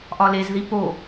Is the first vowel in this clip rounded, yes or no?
yes